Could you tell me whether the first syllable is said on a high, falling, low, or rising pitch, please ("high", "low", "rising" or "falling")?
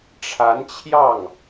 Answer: rising